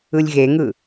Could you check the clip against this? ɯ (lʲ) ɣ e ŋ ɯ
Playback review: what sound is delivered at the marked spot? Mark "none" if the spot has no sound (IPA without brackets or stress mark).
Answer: lʲ